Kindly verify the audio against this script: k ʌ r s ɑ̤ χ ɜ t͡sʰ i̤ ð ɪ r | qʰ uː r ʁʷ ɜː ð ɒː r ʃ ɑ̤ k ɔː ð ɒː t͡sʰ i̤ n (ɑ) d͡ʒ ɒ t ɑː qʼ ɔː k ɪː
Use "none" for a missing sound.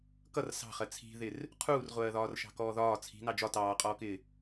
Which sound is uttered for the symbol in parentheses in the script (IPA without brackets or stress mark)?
ɑ